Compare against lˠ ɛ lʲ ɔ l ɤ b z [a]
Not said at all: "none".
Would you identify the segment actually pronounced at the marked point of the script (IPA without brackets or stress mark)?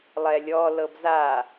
a